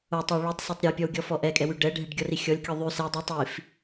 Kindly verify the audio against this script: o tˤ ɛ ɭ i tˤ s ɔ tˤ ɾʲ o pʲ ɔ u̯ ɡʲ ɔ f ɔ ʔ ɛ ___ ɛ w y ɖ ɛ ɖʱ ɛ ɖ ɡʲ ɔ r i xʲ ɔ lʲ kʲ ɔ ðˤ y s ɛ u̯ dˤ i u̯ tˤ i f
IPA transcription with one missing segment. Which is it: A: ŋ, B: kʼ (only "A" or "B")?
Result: B